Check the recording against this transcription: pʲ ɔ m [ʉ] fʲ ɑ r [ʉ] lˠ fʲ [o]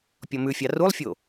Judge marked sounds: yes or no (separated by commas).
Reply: yes, no, yes